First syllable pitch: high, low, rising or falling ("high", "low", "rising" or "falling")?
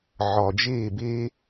low